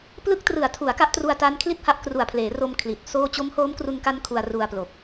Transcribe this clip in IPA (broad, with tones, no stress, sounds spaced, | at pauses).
p l ɯ˦˥ k̚ t r ɯ˨˩ a̯ tʰ u˩˦ a̯ k a˦˥ ʔ t r u˧ a̯ t a˦˥ n kʰ l i˥˩ t̚ h a˦˥ ʔ k r u˨˩ a̯ pʰ l eː˩˦ r o˧ m kʰ l i˨˩ t̚ s oː˥˩ t͡ɕ o˦˥ m h oː˦˥ m k r u˧ n k a˦˥ n kʰ u˧ a̯ r u˧ a̯ p l o˨˩ k̚